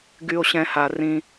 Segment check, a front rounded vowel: present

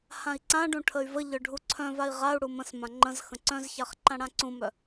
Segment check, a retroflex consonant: present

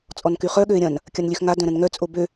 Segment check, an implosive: present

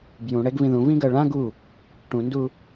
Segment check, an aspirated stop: absent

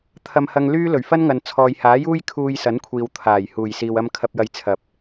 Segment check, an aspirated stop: present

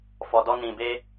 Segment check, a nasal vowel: present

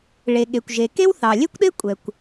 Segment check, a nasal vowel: absent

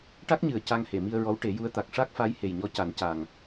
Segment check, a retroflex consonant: present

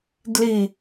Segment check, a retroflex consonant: absent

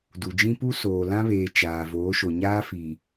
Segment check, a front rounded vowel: absent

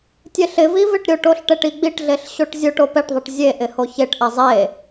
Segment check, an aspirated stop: absent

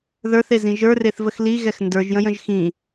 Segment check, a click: absent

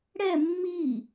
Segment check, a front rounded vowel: absent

